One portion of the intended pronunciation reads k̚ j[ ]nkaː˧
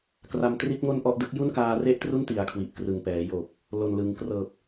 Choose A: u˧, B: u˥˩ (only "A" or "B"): B